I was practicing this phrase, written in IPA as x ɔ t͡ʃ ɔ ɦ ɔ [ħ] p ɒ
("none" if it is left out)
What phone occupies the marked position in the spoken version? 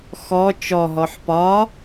ħ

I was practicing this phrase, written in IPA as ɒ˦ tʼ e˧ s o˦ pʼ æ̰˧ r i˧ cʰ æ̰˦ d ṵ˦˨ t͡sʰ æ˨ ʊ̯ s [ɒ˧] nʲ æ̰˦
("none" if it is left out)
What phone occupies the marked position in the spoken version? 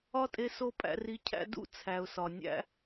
ɒ˨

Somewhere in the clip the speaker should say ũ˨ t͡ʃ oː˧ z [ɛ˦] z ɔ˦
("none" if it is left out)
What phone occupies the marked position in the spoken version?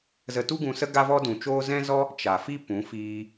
ɛ̃˦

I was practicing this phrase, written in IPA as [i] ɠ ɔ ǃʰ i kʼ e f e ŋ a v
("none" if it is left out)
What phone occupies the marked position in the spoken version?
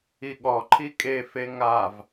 i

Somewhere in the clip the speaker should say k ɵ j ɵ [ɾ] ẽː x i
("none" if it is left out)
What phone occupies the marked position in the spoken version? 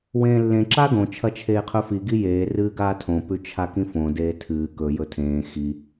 tʰ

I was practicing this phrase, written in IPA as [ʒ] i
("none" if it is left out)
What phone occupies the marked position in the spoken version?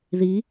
ð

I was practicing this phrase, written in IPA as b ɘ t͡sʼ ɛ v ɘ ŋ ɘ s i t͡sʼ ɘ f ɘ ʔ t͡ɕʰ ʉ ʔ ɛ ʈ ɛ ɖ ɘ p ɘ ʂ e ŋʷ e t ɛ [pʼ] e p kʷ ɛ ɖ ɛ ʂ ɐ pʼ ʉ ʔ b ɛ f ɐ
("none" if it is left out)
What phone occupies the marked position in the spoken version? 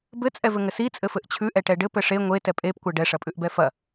pʼ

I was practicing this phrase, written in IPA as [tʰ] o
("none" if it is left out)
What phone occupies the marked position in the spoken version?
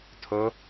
tʰ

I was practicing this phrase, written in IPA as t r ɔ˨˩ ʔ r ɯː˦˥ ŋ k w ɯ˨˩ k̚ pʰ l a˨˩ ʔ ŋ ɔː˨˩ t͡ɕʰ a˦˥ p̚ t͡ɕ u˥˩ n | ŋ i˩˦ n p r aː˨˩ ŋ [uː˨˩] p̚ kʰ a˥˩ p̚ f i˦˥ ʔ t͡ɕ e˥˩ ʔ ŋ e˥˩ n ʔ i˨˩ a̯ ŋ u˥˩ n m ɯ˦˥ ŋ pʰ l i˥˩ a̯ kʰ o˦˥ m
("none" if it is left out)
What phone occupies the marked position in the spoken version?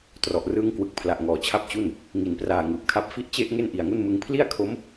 ɯː˨˩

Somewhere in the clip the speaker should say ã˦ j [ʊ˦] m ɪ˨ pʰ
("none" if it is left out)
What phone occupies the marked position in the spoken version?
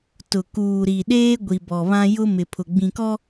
ʊ˦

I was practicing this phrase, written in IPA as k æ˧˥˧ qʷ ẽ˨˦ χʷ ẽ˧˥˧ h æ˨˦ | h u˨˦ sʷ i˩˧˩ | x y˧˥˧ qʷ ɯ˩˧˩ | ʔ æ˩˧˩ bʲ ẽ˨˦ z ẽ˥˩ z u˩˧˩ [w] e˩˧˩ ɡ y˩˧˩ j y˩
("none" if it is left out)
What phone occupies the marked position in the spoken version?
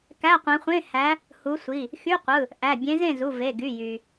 v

